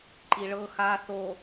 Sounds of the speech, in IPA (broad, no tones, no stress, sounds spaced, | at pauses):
ǃ i ɭ ɤ x a θ o